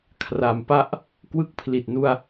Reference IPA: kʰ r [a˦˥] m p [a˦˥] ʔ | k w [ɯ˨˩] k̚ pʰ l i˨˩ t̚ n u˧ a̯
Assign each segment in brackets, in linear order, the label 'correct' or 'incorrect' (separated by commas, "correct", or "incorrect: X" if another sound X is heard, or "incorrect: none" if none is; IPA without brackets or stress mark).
incorrect: a˩˦, correct, incorrect: ɯ˦˥